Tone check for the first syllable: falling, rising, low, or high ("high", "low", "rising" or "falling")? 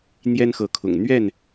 high